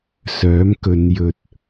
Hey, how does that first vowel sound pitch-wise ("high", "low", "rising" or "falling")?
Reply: rising